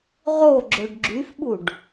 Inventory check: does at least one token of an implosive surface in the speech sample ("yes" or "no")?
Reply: yes